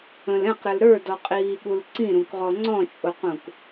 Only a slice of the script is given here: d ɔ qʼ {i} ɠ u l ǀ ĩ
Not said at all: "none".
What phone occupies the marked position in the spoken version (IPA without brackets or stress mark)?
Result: iː